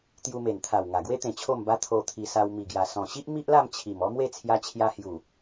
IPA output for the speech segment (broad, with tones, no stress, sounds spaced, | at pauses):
t̪ j u˧ m e˨˩ n t̪ʰ a˨˩ w ŋ a˨˩ ɡ w e˦ t̪ ẽ˨˩ t͡ɕʰ o˥˧ m b a˦ t̪ʰ o˧ t̪ʰ i˧ s a˧ w m i˨˩ ɡ j a˨˩ s ɔ̃˨˩ ɕ i˦ ʔ m i˦ ʔ l a˥˧ m t͡ɕʰ i˨˩ m ɔ˦ m w e˥˧ t͡sʰ j a˧ t͡ɕʰ j a˧ h j u˨˩